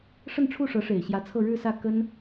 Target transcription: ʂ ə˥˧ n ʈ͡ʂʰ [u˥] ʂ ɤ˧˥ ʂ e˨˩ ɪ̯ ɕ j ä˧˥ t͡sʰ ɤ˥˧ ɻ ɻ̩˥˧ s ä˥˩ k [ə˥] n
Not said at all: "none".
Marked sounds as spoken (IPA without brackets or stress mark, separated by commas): u˥˩, ə˥